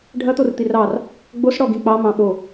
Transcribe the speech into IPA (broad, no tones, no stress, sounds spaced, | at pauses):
ɖʱ ɐ t̪ o r t̪ i r ɑ r | ɡ͡b o s ɽ ɔ ɡ ĩ k͡p ɑ m ɑ̃ ɓ o